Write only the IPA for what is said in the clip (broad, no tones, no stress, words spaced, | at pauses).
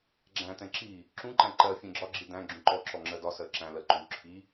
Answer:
ɡ͡ǁæ̃tɛ̃ ǁi | ǁũǃæ̃ ǃɜ fʲɛ̃ɡ͡ǁɒɡ͡ǁi dæ̃ ɡ͡ǁũǃɔǁɔ ŋ͡ǁɜdɒsɜ ǁæ̃lɜ ǃu ǁʰi